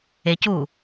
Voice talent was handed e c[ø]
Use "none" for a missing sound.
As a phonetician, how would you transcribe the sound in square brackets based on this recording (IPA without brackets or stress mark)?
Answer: u